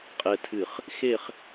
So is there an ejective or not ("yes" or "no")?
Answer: yes